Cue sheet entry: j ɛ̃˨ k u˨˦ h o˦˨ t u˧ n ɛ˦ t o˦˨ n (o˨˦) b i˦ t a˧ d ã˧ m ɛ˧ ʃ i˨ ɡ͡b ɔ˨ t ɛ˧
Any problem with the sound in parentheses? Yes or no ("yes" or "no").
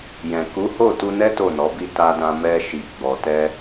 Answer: yes